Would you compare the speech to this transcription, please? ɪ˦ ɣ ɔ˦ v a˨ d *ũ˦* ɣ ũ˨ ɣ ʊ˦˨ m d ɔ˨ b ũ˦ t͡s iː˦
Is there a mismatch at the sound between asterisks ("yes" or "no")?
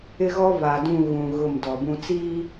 yes